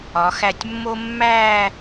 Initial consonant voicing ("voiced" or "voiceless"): voiceless